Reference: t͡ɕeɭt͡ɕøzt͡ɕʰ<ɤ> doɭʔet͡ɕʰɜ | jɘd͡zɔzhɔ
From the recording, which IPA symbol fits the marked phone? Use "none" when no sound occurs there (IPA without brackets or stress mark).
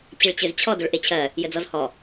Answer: ɔ